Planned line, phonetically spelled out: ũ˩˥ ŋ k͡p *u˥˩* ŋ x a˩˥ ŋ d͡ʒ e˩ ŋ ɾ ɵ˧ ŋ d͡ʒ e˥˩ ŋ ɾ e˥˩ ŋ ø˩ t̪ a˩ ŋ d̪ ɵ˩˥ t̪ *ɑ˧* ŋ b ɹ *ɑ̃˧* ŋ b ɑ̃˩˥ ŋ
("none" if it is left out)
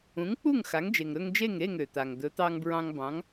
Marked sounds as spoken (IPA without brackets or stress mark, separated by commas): u˥˩, ɑ˧, ɑ̃˧